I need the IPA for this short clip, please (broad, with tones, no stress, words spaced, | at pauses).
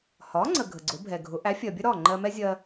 hɒ˩˥ŋ͡ǀə˩ ɡʱə˩ɡ͡ǀʊ˩˥bʱɛ˩ɡʱʊ˩˥ ʔæ˩˥fʲɜ˩bʲə˥ɾɒ˥˩ ŋ͡ǃɜ˧mɛ˥zʲɜ˧